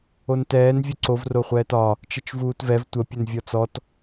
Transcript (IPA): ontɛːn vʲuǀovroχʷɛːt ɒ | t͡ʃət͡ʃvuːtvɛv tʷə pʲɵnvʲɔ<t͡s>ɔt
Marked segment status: correct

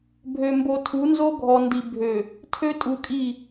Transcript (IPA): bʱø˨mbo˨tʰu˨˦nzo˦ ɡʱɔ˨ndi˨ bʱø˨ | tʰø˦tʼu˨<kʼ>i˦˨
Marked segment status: correct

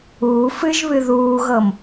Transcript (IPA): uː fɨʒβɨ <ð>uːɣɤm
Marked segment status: correct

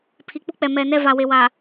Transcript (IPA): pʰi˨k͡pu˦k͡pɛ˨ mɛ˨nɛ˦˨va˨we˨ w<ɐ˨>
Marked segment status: incorrect: a˨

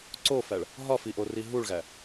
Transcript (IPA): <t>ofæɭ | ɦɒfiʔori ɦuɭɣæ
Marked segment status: incorrect: ǀ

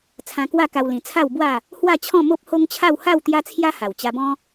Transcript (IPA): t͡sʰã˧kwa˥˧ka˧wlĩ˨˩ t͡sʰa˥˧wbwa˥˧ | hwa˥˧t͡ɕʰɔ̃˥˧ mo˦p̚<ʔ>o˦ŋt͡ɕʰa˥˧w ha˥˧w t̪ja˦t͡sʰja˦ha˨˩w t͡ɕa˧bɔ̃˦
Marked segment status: incorrect: h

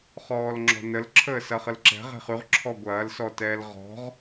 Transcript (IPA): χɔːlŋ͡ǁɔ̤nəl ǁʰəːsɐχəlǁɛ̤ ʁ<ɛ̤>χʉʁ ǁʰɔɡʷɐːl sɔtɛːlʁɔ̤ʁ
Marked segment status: correct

